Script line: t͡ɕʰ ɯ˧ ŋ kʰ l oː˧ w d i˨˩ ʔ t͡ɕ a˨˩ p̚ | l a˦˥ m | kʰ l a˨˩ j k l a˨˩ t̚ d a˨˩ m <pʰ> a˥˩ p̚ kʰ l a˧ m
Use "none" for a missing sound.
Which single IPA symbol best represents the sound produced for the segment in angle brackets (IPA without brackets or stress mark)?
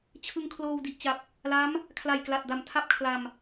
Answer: tʰ